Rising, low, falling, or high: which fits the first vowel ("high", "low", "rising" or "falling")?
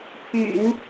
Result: low